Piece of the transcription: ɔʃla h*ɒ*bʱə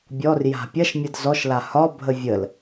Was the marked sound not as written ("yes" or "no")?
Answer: no